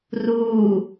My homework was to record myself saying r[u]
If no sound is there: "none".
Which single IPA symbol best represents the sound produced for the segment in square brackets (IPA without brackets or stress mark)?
uː